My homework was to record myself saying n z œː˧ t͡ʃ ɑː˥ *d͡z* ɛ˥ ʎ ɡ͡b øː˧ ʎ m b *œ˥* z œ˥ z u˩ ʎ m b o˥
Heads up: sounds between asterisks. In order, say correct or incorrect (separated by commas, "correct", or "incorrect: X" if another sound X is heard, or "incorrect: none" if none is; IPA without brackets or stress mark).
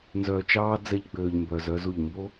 correct, incorrect: œ˧